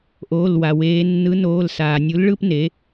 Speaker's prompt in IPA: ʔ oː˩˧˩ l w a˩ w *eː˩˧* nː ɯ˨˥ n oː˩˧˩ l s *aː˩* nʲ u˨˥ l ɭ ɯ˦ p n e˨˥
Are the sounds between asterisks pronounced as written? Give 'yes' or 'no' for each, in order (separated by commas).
yes, yes